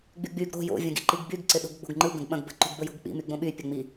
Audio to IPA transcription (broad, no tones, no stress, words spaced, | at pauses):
ɡ͡byɡ͡byɡ ɾo̤ jo̰ vʲɐ̃ɡḭǃiɡbyɡ ǀɪɗo̤ɡɡ͡bo̤ɡŋ͡ǃɯ ɡə̃ɡɓɐ̃ɡ bə̤ ǃo̤ɡbəjo̤ɡk͡pḭ myɡ͡bõɓy pʲɐŋ͡mi